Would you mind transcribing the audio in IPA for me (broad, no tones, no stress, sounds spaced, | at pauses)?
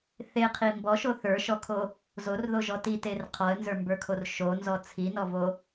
θ e qʰ i m b ɔ ʃ o θ ə˞ ʃ ɔ kʰ o | z o r ð o ʒ ɔ t i t e r qʰ ɔ ə̯ n z ə˞ m b ə˞ kʰ o r ʃ o n z ɔ t͡sʰ i n ɔ v o